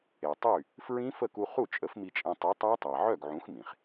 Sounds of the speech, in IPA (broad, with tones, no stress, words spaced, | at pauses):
e˩tˤy˥˩ | fɹĩ˦˥ fə˥˩ku˧ χu˥˩t͡ʃʼə˨˥fmi˧t͡ʃʼẽ˧ tˤi˨˥tˤa˦˥tˤa˩ ʕœ˥˩ɡʕũ˨˥xmĩ˩χ